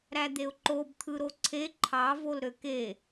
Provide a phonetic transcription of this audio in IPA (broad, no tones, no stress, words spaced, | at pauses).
ɾæd̪eʊ̯ǃob t̪ʰɯɾoǀʰe ǃʰɑ volɾøke